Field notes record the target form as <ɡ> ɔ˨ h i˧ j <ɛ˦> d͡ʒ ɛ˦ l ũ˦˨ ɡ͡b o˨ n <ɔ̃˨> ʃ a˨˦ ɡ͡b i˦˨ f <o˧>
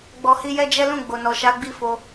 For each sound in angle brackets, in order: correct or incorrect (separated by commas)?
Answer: incorrect, correct, incorrect, correct